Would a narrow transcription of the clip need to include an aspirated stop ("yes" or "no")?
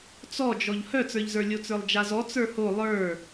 no